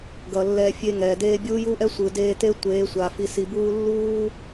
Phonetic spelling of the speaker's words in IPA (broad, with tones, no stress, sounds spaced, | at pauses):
ɡ ʌ˨ lː ɛ˧ fʲ e˧ ŋ ɛ˨ d eː˧ bʲ uː˦ j u˦ ʔ ɛ˦ sʷ ɯ˨ d eː˧ t e˦ tʷ eː˨˦ sʷ a˨ f i˨ s i˨ b uː˦ lː uː˦